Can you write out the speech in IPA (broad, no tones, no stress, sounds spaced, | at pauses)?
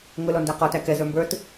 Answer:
ŋ ʊ l ɔ n d æ q ɔ t æ k ɛ z ə˞ m b ə˞ t